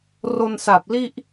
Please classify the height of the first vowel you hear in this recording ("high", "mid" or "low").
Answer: mid